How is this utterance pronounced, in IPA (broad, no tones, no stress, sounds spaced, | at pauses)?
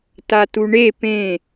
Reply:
t a t u ɳ e p ẽ